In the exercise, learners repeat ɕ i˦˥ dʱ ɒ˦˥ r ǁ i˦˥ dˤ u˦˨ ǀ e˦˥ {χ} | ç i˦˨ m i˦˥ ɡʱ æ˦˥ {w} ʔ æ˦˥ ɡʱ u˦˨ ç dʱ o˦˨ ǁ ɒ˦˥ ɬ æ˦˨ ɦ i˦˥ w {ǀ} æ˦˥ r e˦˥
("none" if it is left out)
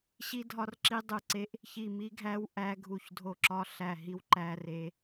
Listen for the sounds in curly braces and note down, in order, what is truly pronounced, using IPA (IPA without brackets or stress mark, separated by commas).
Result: ʔ, w, ǃ